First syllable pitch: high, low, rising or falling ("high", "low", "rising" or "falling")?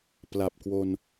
low